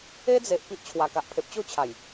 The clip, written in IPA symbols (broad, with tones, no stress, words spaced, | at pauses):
e˦d͡ze˨ʔ pi˦ʔt͡ɕʰwa˨˩ka˨ʔ pʰe˨p̚t͡ɕo˥˧ t͡ɕʰa˨˩j